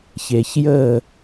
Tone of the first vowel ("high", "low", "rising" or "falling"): low